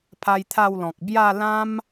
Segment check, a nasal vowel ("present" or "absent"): present